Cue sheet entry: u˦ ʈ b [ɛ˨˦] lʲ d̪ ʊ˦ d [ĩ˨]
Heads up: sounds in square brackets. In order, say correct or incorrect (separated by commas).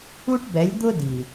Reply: correct, incorrect